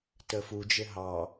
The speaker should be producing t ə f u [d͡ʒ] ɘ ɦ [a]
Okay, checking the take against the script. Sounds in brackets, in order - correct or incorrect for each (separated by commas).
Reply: correct, incorrect